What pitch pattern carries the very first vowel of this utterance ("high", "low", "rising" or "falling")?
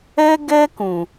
high